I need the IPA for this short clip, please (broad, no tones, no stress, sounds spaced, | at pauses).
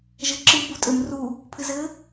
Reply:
ʒ ɘ ǁ ɨ b u tʼ ɘ m r u | pʰ ɨ z ɘ